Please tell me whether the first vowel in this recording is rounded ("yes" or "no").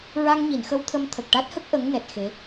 no